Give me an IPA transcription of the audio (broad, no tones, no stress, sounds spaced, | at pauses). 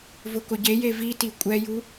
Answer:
v ʊ k ʊ ɟ e j e v i t i kʷʼ ɛ j u